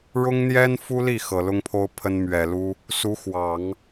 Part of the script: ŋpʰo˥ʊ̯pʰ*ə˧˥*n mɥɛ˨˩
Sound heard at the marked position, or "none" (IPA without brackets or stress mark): ə˥